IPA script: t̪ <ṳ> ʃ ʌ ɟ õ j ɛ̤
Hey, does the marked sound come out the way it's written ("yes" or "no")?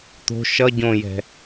no